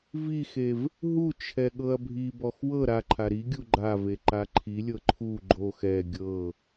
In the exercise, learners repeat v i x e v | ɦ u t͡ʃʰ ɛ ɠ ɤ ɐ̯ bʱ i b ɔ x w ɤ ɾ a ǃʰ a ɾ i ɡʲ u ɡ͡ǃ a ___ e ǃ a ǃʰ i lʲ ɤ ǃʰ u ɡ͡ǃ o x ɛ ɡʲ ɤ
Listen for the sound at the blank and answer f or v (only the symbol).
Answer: v